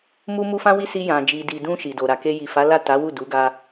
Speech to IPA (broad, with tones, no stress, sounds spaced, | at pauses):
m u˧ m u˧ f ã˦ w i˦ s i˧ j ã˨ d͡ʒ i˨ d i˨ d ũ˧ ʃ i˨ d o˨ ɾ a˨ k e˧ j i˨ f a˨˦ l a˦˨ t a˨˦ w u˦˨ d u˨˦ ɡ a˧